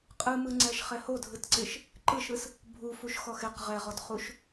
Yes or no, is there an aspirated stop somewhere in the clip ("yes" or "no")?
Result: no